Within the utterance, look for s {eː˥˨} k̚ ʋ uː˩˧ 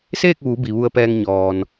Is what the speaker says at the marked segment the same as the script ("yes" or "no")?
yes